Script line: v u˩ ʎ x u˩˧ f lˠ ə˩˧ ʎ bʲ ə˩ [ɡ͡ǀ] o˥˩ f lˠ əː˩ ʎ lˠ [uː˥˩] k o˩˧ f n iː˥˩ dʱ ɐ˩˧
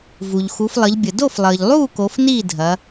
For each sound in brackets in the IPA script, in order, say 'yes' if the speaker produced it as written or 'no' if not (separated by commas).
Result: no, yes